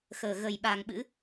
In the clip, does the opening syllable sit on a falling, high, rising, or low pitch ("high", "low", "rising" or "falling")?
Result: low